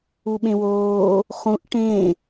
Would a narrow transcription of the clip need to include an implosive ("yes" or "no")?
yes